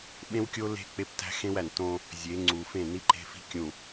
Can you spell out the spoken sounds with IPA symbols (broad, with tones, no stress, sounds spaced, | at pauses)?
ɓ ẽ˦ w kʲ o˦ l e̤˦ k͡p e˦ p t æ̤˦ x ẽ˦ w æ˨ n t õ˦ | zʲ e˨˦ ŋ͡ǀ u˨ f ẽ˦˨ n i˦ ǃ e̤˦ f i̤˦ kʲ ũ˨